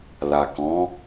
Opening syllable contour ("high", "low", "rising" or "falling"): low